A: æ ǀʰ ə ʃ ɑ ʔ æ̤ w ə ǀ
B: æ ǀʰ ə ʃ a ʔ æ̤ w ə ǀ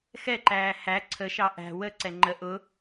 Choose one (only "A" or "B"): A